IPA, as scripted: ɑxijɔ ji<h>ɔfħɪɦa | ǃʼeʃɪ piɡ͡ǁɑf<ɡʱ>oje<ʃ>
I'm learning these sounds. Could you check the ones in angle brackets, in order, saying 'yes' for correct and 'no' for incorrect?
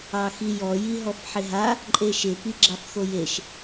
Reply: no, no, yes

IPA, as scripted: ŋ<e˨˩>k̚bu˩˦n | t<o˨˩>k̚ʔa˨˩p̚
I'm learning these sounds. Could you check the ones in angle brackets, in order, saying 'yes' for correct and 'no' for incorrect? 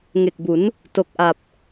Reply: yes, yes

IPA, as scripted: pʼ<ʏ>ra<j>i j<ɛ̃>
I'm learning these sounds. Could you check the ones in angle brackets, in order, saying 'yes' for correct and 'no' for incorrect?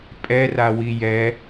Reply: no, no, no

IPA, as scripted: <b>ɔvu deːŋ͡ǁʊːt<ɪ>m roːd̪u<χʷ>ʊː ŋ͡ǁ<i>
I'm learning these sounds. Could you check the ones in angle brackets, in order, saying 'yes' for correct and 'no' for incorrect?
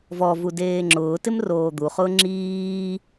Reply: no, yes, no, no

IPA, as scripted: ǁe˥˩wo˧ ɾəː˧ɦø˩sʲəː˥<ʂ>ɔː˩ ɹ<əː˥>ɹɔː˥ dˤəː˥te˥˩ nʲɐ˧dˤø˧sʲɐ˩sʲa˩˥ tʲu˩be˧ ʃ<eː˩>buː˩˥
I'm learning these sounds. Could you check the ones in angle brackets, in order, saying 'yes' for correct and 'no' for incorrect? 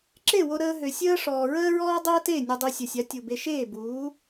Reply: yes, yes, no

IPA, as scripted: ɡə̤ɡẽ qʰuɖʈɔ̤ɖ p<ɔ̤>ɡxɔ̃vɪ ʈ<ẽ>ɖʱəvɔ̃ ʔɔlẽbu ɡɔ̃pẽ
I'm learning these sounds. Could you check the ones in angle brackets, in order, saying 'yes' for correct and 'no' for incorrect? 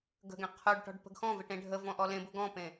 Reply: no, yes

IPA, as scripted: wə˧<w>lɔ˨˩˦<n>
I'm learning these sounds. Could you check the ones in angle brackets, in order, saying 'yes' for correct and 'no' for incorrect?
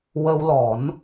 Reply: yes, yes

